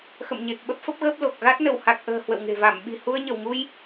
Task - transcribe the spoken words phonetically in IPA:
x ə̰˧˨ m ɲ e˨˩ k̚ ɓ ə˦˥ p̚ f ə˦˥ p̚ ɣ əː˦˥ p̚ l o˨˩ k̚ ɣ a˦˥ t̚ n ə˧˩ w h a˨˩ k̚ ʔ ə̤ː˨˩ h w ə̰˧˨ w ŋ e̤˨˩ v a˧˩ m ɓ i̤˨˩ h u˧ ə̯ ɲ ə˧˩ w ŋ u˧ j

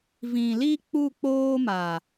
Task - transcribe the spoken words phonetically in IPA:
v ĩ˨ l i˦ k͡p u˦˨ k͡p oː˦ m a˨

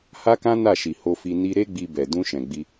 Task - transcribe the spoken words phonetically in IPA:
h a˦ k ã˦ n a˦˨ ʃ i˨ h o˧ f i˧ n i˦ ɾ e˦ ɡ͡b i˧ b ɛ˨ d ũ˧ ʃ ɛ̃˨ ɡ͡b i˧

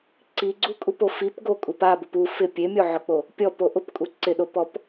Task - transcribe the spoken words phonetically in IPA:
ǀ i ɡ͡ǀ u kʼ u p o f i p ɡ o kʼ u p a b ʊ p u f ɪ pʲ e mʲ o ʕ ʊ k͡p o | pʲ ɔ p o ʔ ʊ p kʼ u ǀ ɪ ɗ o p ɔ p

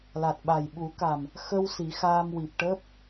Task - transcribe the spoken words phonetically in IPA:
l a˨˩ t̚ ɓ a˨˩ j ɓ u˨˩˦ k a˨˩ m | x ə˧ w s i˨˩˦ x aː˧ m w i˨˩ p̚ ʈ əː˦˥ p̚

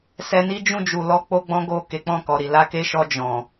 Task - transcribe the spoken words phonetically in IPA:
s ɛ˧ n i˦ d͡ʒ ũ˦˨ d͡ʒ u˨ l ɔ˧ k͡p o˦ ɡ͡b ɔ̃˦ ɡ o˦˨ k e˨˦ k͡p ɔ̃˦˨ k ɔ˨ ɾ i˨ l a˨˦ k e˧ ʃ ɔ˧ d͡ʒ ɔ̃˨

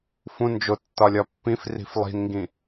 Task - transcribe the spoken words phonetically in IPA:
f ũ n d͡ʒ o tː ɒ lʲ ɒ pː ĩ f r i̤ f lˠ i̤ n ŋ ɡ ĩ

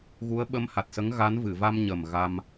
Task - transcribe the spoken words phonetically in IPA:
ɣ u˧˥ ə̯ ɓ ə˧˥ m h a˨˩ t̚ s ə˧˥ ŋ ɣ a˧˥ n v ɨ˨˩˨ v a˧ m ɲ ə˨˩ m ɣ a˧ m

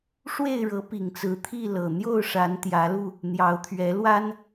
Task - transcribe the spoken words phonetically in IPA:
ʂ w e˥˨ ɪ̯ ɻ ɤ˨˦ p i˨˩ ŋ t͡s ɹ̩˨˦ t̪ʰ i˥˨ l ɤ˨˩ n̪ j o˥˨ ʊ̯ ʂ a˨˦ n t̪ j ä˨˦ l u˧ | n̪ j ɑ˨˦ ʊ̯ t̪ʰ ɥ ɛ˨˦ l w a˦ n

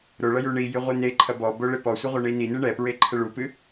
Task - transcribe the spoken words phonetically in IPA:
ɾ o ɭ ɐ j u ɳ i j ɨ ʁʷ i n e ǃʰ ɐ b ɔ b o ɭ e p ɔ sʷ ɘ ʁʷ ɐ ɳ i n i n ɨ ɳ ɛ p ɹ e ǃʰ ɘ ɭ u p ɨ

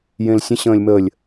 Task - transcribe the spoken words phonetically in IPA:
j ẽ l sʲ ə̃ ɕ ə̃ː lʲ m ə lʲ

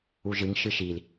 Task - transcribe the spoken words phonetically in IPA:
u ʒ ɨ ŋ ʃ ɨ ʃ i l

